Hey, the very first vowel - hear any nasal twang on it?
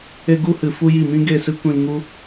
no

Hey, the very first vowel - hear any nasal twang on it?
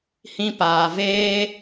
yes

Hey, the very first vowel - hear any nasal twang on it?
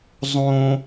yes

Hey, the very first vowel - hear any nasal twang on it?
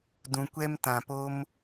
yes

